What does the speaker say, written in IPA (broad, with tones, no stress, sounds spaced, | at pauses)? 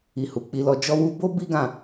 i˨ h u˨ k͡p i˨˦ l ɔ˧ d͡ʒ ɔ˧ w u˧ b o˦ b i˦ ɡ ã˦˨